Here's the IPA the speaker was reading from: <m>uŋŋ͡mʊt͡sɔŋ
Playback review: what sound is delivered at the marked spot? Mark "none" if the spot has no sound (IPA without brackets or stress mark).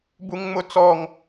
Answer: b